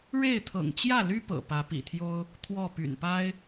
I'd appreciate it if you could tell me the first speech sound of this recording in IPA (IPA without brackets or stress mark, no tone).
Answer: ɻ